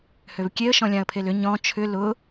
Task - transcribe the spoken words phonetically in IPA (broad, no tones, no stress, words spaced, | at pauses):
høvkʲeə̯ ʃɔ̃lʲãə̯pʰelʏ ɲɔ̃ t͡ʃʰʏ lʊ